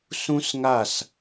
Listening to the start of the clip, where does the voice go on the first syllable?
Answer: high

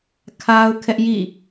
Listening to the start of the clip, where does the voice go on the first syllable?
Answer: high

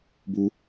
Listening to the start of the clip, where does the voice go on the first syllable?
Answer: high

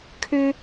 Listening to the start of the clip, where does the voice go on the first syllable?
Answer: high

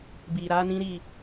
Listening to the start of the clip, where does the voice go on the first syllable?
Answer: low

